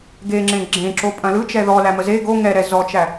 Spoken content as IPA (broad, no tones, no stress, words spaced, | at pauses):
ɡeŋ͡ǁẽ ɡ͡ǁẽǁo pʼɐ̃lɯt͡ʃɛ ðɔ læməze ɡo ŋɛɾɛ zɔt͡ʃæ